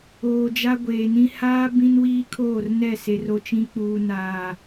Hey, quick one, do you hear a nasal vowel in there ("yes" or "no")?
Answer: yes